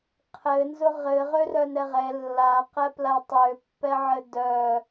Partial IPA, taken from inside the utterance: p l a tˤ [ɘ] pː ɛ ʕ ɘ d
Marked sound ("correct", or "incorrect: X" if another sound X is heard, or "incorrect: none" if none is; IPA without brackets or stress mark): incorrect: ø